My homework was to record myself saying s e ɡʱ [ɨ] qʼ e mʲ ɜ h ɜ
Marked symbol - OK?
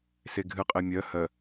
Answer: yes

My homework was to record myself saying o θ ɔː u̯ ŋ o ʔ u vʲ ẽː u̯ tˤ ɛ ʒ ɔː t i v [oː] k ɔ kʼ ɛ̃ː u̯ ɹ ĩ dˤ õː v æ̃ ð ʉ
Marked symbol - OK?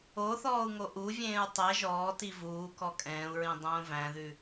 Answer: no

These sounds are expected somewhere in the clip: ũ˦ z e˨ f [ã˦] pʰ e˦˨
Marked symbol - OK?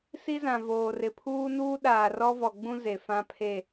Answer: yes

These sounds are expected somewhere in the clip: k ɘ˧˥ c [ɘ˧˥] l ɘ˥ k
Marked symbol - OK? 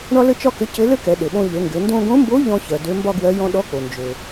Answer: yes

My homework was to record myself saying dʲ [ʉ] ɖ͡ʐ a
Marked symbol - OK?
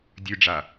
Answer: yes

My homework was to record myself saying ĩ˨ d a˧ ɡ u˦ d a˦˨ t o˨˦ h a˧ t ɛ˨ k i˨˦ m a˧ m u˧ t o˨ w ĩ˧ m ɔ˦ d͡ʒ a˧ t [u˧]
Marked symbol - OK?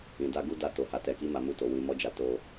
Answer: no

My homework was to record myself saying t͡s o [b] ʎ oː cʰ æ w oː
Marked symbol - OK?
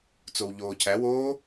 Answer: no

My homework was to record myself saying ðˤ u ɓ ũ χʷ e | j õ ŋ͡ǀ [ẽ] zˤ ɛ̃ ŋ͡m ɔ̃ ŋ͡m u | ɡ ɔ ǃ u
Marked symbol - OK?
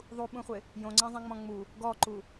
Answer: yes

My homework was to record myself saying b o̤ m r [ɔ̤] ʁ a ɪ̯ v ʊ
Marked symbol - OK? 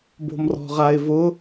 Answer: yes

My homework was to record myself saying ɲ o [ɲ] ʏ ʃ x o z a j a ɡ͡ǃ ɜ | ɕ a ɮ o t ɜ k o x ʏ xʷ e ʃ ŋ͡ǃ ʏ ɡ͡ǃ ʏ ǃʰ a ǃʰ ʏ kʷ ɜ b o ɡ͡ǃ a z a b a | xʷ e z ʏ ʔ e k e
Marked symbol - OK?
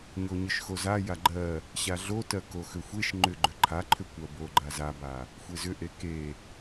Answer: yes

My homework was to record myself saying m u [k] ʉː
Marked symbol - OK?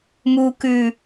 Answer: yes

